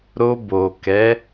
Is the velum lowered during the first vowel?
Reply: no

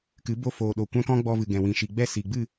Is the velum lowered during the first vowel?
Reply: no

